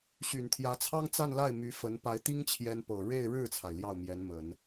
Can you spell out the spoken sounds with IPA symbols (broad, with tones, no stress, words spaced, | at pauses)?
ɕy˨˩nt̪ʰjä˧˥t͡sʰɑ˥ŋ t͡sa˥˧nla˥˩ɪ̯ my˧˥fə˧˥n pa˧˥ɪ̯t̪i˥ŋt͡ɕʰjɛ˧˥npɤ˨˩ ɻe˥˧ɪ̯ɻɻ̩˥˩t͡sʰa˩ɪ̯ ljɑ˥˩ʊ̯mjɛ˧˥nmə˨˩˦n